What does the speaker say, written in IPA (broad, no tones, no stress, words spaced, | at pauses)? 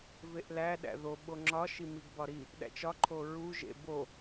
veʔlæ ɗæ̰ðo ɓoŋ͡ǁɒ ʃimiɡbɒɾi | ɗæ̰t͡ʃɒ ǃʰoɹu ʒḛbo